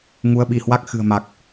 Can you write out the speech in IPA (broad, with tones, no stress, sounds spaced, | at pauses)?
ŋ u˨˦ ə̯ ɓ i˧˩ h w a˦˥ k̚ x ɨ̤˨˩ ə̯ m a˨˩ k̚